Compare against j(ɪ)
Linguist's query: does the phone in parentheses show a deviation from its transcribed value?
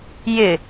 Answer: no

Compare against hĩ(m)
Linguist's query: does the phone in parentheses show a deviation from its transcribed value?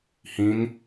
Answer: yes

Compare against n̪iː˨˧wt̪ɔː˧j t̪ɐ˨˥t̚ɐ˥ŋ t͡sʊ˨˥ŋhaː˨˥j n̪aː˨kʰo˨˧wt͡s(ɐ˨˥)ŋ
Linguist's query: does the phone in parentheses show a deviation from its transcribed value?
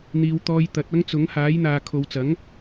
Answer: no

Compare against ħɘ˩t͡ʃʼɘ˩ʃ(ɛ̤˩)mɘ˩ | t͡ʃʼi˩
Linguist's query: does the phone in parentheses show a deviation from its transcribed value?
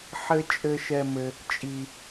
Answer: yes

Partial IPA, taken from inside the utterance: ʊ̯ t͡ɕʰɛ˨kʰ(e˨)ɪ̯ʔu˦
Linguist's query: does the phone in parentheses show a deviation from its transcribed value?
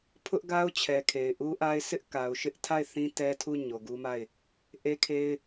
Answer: no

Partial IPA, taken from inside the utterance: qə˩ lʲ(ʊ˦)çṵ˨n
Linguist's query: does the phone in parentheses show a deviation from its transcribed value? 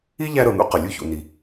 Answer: yes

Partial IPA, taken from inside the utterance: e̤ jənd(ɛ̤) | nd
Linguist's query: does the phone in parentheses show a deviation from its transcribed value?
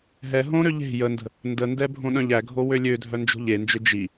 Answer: yes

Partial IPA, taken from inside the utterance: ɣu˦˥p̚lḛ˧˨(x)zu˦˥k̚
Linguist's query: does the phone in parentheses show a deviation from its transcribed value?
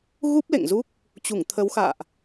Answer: yes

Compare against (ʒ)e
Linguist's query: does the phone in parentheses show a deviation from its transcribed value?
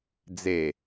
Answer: yes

